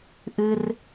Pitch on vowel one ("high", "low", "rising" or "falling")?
high